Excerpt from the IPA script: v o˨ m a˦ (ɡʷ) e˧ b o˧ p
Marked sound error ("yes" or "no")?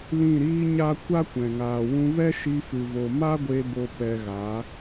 no